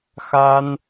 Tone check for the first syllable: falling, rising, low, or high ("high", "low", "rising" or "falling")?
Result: high